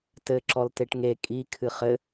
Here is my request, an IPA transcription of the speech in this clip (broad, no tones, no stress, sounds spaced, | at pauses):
t ɘ ǁ ɔ l t e ʈ ŋ e kʼ i kʰ ɨ χ ɘ